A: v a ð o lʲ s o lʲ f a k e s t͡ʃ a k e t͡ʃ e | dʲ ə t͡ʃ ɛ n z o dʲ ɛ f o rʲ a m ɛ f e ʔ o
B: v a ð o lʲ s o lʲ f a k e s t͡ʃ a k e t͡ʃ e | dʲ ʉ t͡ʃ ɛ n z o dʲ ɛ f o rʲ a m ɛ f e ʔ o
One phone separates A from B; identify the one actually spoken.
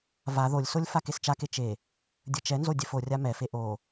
A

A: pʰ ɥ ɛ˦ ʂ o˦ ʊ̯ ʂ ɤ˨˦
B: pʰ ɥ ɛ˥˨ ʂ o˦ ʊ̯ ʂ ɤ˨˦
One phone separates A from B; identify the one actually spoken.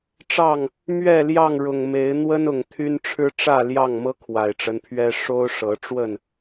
A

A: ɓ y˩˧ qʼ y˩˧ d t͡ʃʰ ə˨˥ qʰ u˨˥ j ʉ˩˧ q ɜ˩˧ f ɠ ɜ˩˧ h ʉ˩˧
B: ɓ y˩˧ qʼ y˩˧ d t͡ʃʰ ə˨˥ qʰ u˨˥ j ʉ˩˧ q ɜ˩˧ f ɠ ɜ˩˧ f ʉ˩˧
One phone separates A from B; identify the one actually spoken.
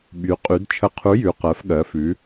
B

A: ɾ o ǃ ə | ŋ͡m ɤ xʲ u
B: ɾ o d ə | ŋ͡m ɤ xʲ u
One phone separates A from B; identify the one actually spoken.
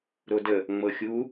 B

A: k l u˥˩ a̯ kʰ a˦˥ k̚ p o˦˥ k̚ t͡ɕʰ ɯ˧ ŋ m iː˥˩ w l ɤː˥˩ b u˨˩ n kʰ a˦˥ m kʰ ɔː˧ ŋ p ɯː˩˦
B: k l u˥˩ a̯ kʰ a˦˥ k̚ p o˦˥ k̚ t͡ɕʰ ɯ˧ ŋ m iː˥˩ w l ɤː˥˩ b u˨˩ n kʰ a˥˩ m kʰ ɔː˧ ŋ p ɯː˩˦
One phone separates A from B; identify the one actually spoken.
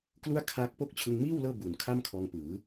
B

